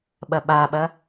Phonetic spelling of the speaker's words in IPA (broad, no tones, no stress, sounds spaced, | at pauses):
ɓ ɐ ɓ a ɓ ɐ